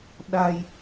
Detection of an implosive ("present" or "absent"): present